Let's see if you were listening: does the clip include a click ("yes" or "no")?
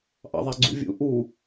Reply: yes